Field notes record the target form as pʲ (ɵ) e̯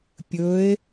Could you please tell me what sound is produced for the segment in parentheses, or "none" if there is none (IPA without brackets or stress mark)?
ɵ